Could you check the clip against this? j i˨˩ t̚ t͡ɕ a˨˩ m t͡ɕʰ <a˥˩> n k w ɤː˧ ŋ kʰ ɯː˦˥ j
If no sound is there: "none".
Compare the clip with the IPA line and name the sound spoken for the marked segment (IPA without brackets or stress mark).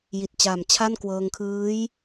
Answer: a˥˩